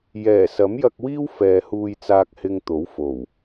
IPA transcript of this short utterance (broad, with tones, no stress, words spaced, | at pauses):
jɛː˨˩ sɐ˨˥mjɐ˧k̚wiː˥w fɛː˨huː˧jt͡saː˧k̚hɪ˧ŋ t̪o˨˥wfo˨˩w